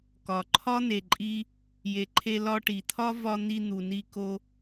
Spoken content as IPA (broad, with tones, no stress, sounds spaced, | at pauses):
k ɒ˩ ǃʰ ɒ˥ n̪ e˩ ǃʼ i˧ | j e˩ ǃʰ e˧ l ɒ˧ ʈ i˩ t̪ʰ ɒ˥ v ɒ˧ n̪ i˧ n̪ u˩ n i˧ k o˧